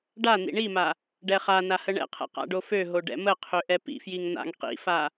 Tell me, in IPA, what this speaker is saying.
ɖan̪ḭ ɳima | ɖɛχana həɳɛ̰qʰɛ̰ qa̰ɖoføɦo ɖɛ̰məqʰø ʔɛpḭfjiŋ n̪a̰ŋ qḭfa

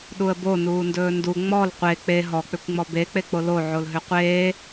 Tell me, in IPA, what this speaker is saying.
ɗuə̯bo nuːndɵːndu ŋ͡mɔl qʷe k͡pe ɦɔk͡pʏkʷŋ͡mɔ bek͡pe k͡polo ʕolɦʏqʷeː

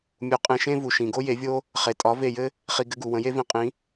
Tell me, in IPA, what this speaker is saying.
mʲu˩˥qʼẽ˧ʃẽ˥vu˩ ʃĩ˩ɡo˥je˩˥vʲo˥ | χe˩tʼɒ˩˥ ve˥˩jɘ˥ | χi˧ ɡɘ˧ɡu˩ wə̃˩˥je˥vĩ˧qʼĩ˩˥

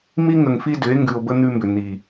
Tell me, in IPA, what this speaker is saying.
mi˦ŋə˨ŋfi˦dʏ˨˦e̯ ŋɡʉ˨o̯bə˦ n̪ʉ˦mbʏ˨ n̪i˨

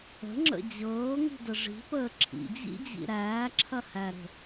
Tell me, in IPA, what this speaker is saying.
ə̤ŋ͡ǁə̰ d͡ʑɤːŋi̤də ʐi̤pəː ǁʰḭd͡ʑḭd͡ʑḭ ɾæːǁʰɐhæɾə̤

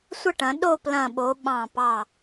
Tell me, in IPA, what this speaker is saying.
sʷə˥˧ʈɐ̃˩˧ɗo˥˧ plɐ̃˧˩ɓo˩˧ ɓɑ̃˧˩pɑ˧˩

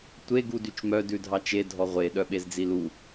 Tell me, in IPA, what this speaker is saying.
tʷeɡu dyt͡ʃmœ dʉdʱɑt͡ʃe dʱɔʁʷe ɗœɓezd͡zilu

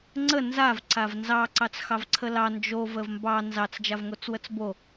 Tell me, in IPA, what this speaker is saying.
ŋ͡ǀə nzav ǀavnzɑ ǀɑt͡sxɑvǀʰəlɑ nd͡ʒo vəvmbɑ nzɑt͡s d͡ʒavŋot͡swət͡sbo

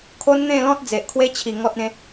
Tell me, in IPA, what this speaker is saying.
kʰo˦nn̪ẽ˥˧lɔ̃˦t̚ d͡ze˨ʔkʰwe˦t͡ɕʰi˨˩ ŋɔ˦t̚ẽ˦

